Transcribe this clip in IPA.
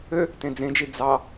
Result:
ø | t ẽ d͡z ẽ d͡ʒ i d͡z ɑ

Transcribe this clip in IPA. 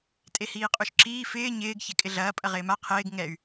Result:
tʼ e h iː qʼ u ʃ ǁ iː f ɪː ɲ ɪː ɡ ç e kʼ ɪ ɮ ɐː pʼ ɐ ʁ ɪː m a qʰ ɪː ɡ ŋ ɛ y̯

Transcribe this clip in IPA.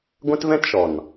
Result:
ɡʷ ɛ̃˦ t v ɛ̃˦ t ʃ ɔ˨ n

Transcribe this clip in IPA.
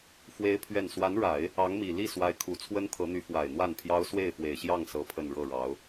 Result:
f w e˥ ɪ̯ pʰ ɥ ɛ˥˩ n s w a˧˥ n ɻ a˨˩˦ ɪ̯ | ɑ˧˥ ŋ m i˨˩ l i˥˩ s w a˧˥ ɪ̯ kʰ u˨˩ t͡sʰ w ə˥ n t̪ʰ ɤ˧˥ n̪ y˧˥ f w a˨˩ ɪ̯ n̪ w a˥˩ n pʰ j ɑ˥ ʊ̯ s w e˥˩ ɪ̯ f w e˨˩ ɪ̯ ɕ j ɑ˥˩ ŋ s ɤ˥ pʰ ə˥˧ n ɻ ɤ˥˩ ɻ ɑ˧˥ ʊ̯

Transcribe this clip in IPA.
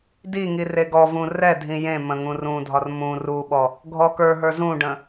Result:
d i ŋ i r e ɡ ɔ v ũ r ɛ dʱ ĩ j ẽ m ə̃ ŋ ũ r ũ dʱ ɒ r m ũ r u ɓ ɔ | ɡʱ ɔ k ə˞ ɦ ə˞ z ũ ɖ ə̃

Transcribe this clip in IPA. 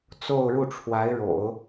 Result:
t͡s o˥˧ ʊ̯ ɻ u˥˩ ʈ͡ʂʰ w a˧˥ ɪ̯ ɻ o̰˨˩˦ ʊ̯

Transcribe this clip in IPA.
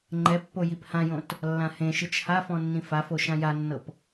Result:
ŋ͡ǃ ɛ pː o j i p h ã j õ t | lː ã h ẽ ʃ ɯ t͡ʃ h a f ɔ̃ nː ĩ f a f o ʃ ã j a nː ɤ p

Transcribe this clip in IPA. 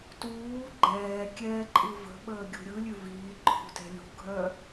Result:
t uː ɡ͡ǃ ɛː kʲ ɛː ǃʼ ɯ v ə̤ ɓ əː ɡʲ ṳ ɾʲ ɯ lʲ ʉ v iː ǃʰ ṳ t ɛ̤ lʲ ṳ ɡʱ œ

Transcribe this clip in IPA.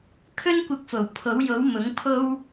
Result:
kʰ ɵ˥ n kʷ ɐ˧ k̚ f o˨˩ w pʰ o˨˥ w j o˨˥ w m ʊ˨˥ ŋ pʰ o˥ w

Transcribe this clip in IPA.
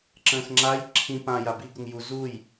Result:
ǁ ə̃ː x ŋ͡ǁ a j ǁʰ ĩ p ã j a b i ɡ ʊ ŋ j u z u j

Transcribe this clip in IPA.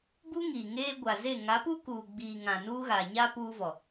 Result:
b u˦ ŋ iː˨ ŋ eː˦ ɡʷ a˨ z e˦˨ ŋ a˨˦ p u˦ k uː˨ ɡ͡b iː˨ ŋ ã˨ n uː˦ ɣ a˨ ɲ a˦ p uː˦ v ɔ˨

